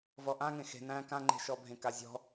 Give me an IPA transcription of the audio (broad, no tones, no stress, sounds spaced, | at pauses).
v ɔ ʔ ã ŋ ẽ x e̤ n æ̃ k ã ŋ͡ǃ e̤ ʃ ɔ bʱ ẽ k a zʲ ɔ̤